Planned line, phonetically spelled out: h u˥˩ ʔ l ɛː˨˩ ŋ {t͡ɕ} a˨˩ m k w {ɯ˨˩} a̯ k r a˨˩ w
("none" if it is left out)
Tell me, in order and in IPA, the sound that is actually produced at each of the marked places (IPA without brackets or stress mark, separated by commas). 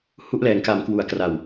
k, u˨˩